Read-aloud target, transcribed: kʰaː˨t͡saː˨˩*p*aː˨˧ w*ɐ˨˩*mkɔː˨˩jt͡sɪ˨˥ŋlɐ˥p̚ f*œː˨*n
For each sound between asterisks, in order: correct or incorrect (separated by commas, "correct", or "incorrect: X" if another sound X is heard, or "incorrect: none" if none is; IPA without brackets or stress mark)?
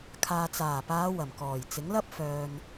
correct, correct, correct